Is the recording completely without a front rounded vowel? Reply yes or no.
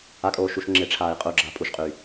no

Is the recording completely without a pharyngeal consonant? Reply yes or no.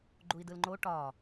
yes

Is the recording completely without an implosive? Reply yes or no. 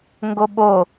no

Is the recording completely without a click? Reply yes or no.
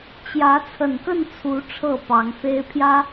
yes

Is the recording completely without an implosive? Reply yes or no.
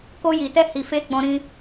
yes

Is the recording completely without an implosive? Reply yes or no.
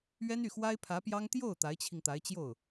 yes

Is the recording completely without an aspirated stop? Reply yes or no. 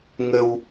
yes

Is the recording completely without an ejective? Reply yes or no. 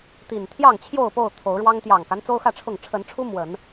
yes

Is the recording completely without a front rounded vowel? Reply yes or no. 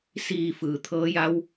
yes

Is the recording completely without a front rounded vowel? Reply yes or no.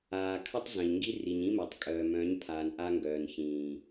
no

